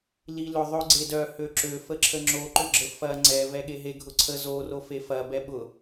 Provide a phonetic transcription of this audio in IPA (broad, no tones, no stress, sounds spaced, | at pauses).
l i l ʏ ðˤ ʏ ɡ͡ǀ e d œ h ø ǁ ø f ə ǁʰ ə ŋ͡ǁ o ǃ ʏ ɡ͡ǁ ə f ɐ ŋ͡ǀ ɛ v ɛ ɠ e ɦ e ɡʱ ʊ ǀʰ ə z o r o f e f ɐ b ɛ ɓ ʊ